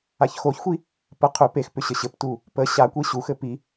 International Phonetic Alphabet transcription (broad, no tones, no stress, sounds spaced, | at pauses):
a ç x o ç xʷ i | p ə qʰ ʏ p e x p ʏ ɕ ə ɕ ɘ p t u | p ə ɕ a kʷ i ɕ u x ɘ p i